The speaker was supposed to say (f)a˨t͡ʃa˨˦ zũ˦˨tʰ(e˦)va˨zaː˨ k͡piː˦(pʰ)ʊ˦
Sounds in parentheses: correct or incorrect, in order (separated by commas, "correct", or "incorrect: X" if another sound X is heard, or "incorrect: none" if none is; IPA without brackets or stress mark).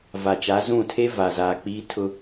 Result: incorrect: v, correct, incorrect: tʰ